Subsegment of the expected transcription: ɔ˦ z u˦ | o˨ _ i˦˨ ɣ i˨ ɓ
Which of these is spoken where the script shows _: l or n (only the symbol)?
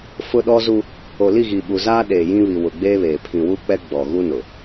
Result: l